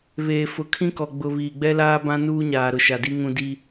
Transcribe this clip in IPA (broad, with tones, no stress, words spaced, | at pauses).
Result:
βeː˨ fʊ˨ kʰĩ˦kɔ˨ ɡ͡bʊ˨ βiː˨ɡ͡bɛ˦laː˦ bã˦nuː˦ɲaː˨ ɾʊ˨ʃa˨di˦ ŋũ˦ di˦